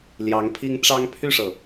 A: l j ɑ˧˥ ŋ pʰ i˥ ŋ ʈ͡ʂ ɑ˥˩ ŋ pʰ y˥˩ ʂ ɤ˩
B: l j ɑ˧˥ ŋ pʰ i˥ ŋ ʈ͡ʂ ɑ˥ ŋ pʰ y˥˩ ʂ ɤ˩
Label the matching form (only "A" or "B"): B